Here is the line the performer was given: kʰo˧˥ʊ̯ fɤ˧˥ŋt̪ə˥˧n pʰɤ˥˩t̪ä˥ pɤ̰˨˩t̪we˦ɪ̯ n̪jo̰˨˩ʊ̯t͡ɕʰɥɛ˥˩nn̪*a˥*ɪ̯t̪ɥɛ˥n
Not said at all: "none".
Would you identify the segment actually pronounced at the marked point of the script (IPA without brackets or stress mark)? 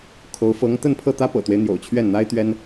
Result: a˥